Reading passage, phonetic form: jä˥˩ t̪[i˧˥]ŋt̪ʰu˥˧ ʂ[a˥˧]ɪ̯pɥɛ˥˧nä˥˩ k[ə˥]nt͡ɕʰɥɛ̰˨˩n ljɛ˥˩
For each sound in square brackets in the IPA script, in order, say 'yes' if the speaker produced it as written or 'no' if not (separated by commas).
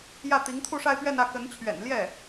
yes, yes, no